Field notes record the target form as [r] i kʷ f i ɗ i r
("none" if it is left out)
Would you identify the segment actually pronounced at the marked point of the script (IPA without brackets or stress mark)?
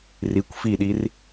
r